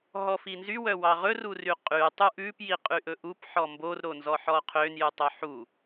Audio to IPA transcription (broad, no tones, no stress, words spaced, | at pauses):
ɦɔfinzy wœwɑʁɵ ruryqʼy tˤuʔʉp jiqʼyʔɵʔup ħɔmbor ɾonzɔħɔqʰøn jʉtˤœħu